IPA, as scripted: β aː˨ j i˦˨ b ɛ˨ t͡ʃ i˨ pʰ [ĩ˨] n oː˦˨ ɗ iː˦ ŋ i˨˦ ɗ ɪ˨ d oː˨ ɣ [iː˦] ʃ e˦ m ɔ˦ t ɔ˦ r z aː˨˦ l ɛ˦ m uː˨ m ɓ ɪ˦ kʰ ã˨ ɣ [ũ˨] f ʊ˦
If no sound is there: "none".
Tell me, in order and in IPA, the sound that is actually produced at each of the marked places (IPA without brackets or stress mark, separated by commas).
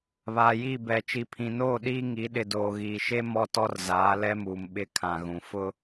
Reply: ĩ˨, iː˨, ũ˨